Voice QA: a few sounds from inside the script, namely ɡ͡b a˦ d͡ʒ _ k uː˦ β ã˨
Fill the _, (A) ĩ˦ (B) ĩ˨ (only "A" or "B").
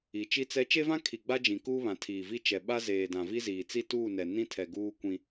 B